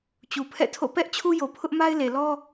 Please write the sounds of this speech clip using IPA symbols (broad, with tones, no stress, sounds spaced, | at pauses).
t͡ɕ u˨ pʰ ɛ̰˦˨ tʰ o̰˦˨ p ɛ˦ ʔ t͡ɕʰ u˦ j o˨ pʰ ʊ˦ ʔ m a˦ ɪ̯ l e˨ l ɔ˦